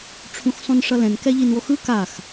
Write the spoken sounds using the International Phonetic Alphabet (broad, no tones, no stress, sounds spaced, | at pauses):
ʈ͡ʂʰ ũ x sˤ ũ n ʂ ʌ l ɛ̃ n k ɛ ʎ i n w o x ɯ k a x